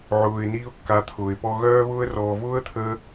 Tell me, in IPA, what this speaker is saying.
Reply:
ʕ ʊː˨ ɪ̯ n iː˧ ʊ̯ kː a˨˦ t̪ʰ ʊː˨ ɪ̯ p ɔ˧ ɣ œː˧ β ʊː˧ ə̯ r ɔː˨ v ʊː˦ ə̯ t̪ʰ ə˧

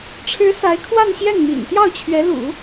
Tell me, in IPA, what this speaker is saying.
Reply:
ʈ͡ʂʰ ɻ̩˧˥ s a˧˥ ɪ̯ kʰ w a˥˧ n ɕ j ɛ˥˩ n m ḭ˨˩ n t̪ j ɑ˥˩ ʊ̯ t͡ɕʰ ɥ ɛ˧˥ l ṵ˨˩˦

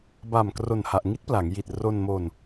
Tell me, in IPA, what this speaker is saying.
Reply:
b a˨˩ m k r o˨˩ n h a˨˩ ʔ ŋ i˦˥ t̚ p l a˩˦ ŋ j i˨˩ t̚ r o˧ n m o˧ n

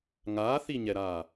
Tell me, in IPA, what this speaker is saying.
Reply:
ŋ aː θ i ɲ ɛ ɾ aː

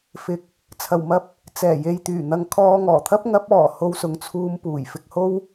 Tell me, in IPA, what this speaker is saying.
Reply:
f ɪ˨˥ k̚ | t͡sʰ ɐ˨˩ w m ɐ˧ p̚ | t͡s ɛː˨˩ j e˨ j t̪ yː˨˩ n̪ ɐ˨˧ ŋ kʰ ɔː˧ ŋ ɔː˨˩ t̪ʰ ɐ˥ p̚ ŋ ɐ˨˥ p̚ ɔː˨˩ h o˧ w s ʊ˨ ŋ t͡sʰ uː˧ m p uː˨˩ j f ɪ˨ k̚ h o˧ w

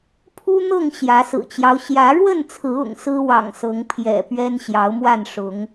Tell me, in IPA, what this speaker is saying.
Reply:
pʰ u˦ n̪ ɤ˥˨ ŋ ɕ j ä˨˦ s ɹ̩˨˩ t͡ɕ j ɑ˦ ʊ̯ ɕ j ä˨˦ ɻ w ə˥˨ n t͡sʰ ɹ̩˨˦ ʊ̰˨˩ ŋ s ɹ̩˦ w ɑ̰˨˩ ŋ s ɤ˨˦ ŋ pʰ j ɛ̰˨˩ p ɥ ɛ˦ n ɕ j ɑ˨˦ ʊ̯ m w a˥˨ n ʂ ʊ˨˦ ŋ

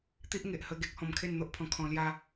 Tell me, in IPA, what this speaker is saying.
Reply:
t̪ i˦ ʔ ŋ e˨ ʔ h ə˧ ɡ e˦ k̚ h ɔ̃˧ m kʰ e˥˧ n n̪ o˦ ʔ pʰ ɔ̃˧ kʰ ɔ̃˧ l j a˦

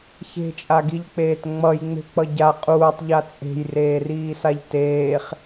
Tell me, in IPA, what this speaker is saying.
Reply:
ç e̤ t͡ʃʼ a ɡ i ʎ k͡p eː t ŋ͡m ʌ j ŋ͡m e̤ k͡p ʌ ɟ a qʼ uː tˤ ʎ a t͡sʼ e̤ j r eː r iː s a ʎ t eː χ

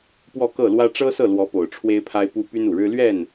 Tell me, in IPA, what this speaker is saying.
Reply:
p w ɔ˥˧ k ɤ˥˩ l w ä˥ ʈ͡ʂ ɤ˥ s ɤ˥˩ l w ɔ˧˥ p o˨˩ ʊ̯ ʈ͡ʂʰ w e˥ ɪ̯ pʰ a˥ ɪ̯ p u˥ p y˥ n u˨˩ ɻ ɻ̩˥ l ɥ ɛ˥˩ n

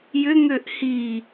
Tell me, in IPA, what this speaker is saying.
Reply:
j ʏ ŋ ø ʔ h i

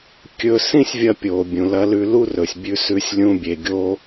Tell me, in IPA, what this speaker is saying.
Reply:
kʲ ɵ˧ s ĩ˥ sʲ vʲ ɐ˧ pʲ o˩ bʲ ũ˩ l ɐ˧ l ʉ˧ l u˥ r ɵ˩ sʲ bʲ ʉ˧ s ʉ˧ sʲ lʲ ũ˧ bʲ e˩ ɡʲ o˥

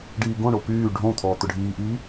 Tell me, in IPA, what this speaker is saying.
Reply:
ɖ iː ɡ õ ɳ o p yː ɖʱ õ t̪ʰ ɔː t̪ ʊ ɖʱ iː ʔ iː

